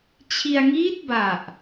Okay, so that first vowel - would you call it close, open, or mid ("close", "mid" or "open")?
close